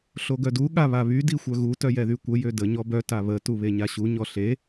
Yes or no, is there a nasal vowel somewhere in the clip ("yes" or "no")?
no